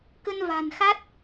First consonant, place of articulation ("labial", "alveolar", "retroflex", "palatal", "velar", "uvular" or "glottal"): velar